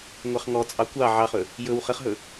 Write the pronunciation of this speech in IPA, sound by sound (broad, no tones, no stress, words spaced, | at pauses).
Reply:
ŋʷɑχŋɔt͡sʼɑ kʷɑ ʕɑχɵ | jɵw χəχɦɵ